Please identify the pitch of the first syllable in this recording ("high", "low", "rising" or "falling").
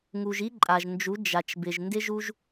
low